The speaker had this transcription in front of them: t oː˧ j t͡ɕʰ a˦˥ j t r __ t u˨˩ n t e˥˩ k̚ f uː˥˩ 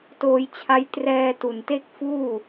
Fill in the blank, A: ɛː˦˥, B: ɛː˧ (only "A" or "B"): B